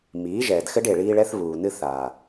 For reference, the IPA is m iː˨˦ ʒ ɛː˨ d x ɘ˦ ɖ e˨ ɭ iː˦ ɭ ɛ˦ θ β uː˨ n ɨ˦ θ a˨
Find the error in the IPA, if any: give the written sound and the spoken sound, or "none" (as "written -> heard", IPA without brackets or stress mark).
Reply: none